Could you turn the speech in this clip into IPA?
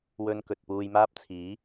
wɵ˧n kɵ˨t̚puː˧jmaː˥p̚t͡sʰiː˨˥

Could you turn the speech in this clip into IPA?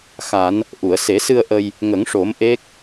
xa˨˩˦n | ʔu˨˩˨ə̯se˨˩˦sɨ˧ə̯ ʔə˧j | ŋə˨˩˦ŋʂo˨˩˦m ʔe˦˥k̚

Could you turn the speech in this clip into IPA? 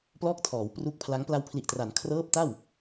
plɔː˥˩k̚tʰɔː˩˦wpru˦˥k̚pʰla˦˥ŋ pla˧wpʰli˨˩ʔtra˩˦n kʰrɤː˦˥p̚ta˥˩w

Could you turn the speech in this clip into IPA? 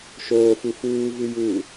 ʃoːfu fuːvɨjuː

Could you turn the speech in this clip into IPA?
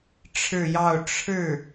ʈ͡ʂʰɻ̩˥˧jɑ˥˧ʊ̯ ʈ͡ʂʰɻ̩˥˩

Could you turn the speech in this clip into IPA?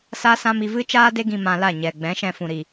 sa˦sã˦mi˧ vɨ˦t͡ʃaː˦de˦ ɡĩ˧mã˧la˦˨ ɲɛ˨ ɡ͡bɛ̃˨˦ʃɛ̃˧fũ˨ ɾi˨

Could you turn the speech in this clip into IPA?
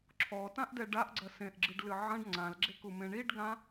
ǁʰɔtãʔdɛ ɖaʔɡ͡ǀɐ sẽʔɡ͡ǁɨɖlɨ ʕɐ̃ɖ ŋ͡ǀãlɡ͡ǁekumẽ ɳiɖɡã

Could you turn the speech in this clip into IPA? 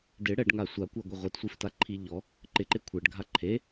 dɪ ɽɛɖŋa sʷakʷaɡʷɪ ʁʷitsʷiftaǃʰi ʎɔ | ǃɪǃɪ kʷʰɛɖɡʱa ǃʰe

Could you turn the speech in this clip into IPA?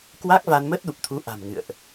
kwa˦˥k̚va˧n mə˦˥t̚ɗu˨˩p̚t̪ʰu˨˦ ʔa̤˨˩mŋɨ̰˧˨ə̯ʔ

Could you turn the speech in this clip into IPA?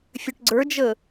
fʲøʈɡ͡ǀə˞d͡ʒə

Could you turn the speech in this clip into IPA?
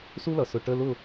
su˥lʌ˩ sʊ˩ ʈə˧˥˧ lʊ˥˩

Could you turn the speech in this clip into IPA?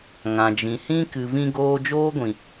ŋã˨d͡ʒĩ˨hĩ˦ kɨ˨vĩ˧ɡoː˧ d͡ʒoː˦ɡʷĩ˨

